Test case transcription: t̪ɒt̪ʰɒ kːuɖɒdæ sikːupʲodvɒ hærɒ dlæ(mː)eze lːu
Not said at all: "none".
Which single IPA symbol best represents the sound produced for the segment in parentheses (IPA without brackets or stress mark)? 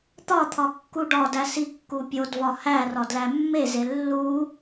mː